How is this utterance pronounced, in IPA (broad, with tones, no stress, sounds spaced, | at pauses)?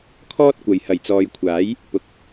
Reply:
kʰ ɔː˥ t̚ kʷ ɐ˨ j h ɐ˨˩ j t͡s ɔː˨ j kʷʰ aː˨˥ j | p ʊ˧ k̚